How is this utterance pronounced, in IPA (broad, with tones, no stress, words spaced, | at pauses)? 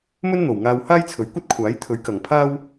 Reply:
mɵ˥nn̪o˨wŋaː˧w haː˥jt͡sʰɵ˨˥ɥkʷɐ˥t̚kʷʰaː˨˥j t̪ʰɵ˨˥ɥkɐ˨ŋpʰaː˥w